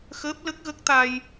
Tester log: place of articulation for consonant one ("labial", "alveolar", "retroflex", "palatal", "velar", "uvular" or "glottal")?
velar